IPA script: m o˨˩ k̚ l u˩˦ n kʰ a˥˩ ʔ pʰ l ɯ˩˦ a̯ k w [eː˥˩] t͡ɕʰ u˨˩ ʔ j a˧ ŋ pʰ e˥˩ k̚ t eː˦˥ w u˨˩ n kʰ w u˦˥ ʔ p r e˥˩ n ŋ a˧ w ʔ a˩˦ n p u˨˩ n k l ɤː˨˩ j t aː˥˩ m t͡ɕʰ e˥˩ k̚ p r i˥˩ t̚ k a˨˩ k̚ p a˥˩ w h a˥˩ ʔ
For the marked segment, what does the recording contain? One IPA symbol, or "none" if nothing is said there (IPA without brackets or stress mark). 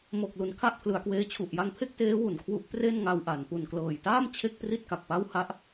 eː˦˥